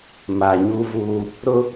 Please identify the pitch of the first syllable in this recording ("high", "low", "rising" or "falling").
low